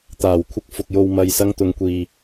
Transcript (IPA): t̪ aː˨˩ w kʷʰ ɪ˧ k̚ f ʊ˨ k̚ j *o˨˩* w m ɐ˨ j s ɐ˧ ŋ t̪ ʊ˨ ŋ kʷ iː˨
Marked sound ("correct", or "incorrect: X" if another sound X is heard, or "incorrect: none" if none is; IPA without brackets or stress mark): incorrect: o˨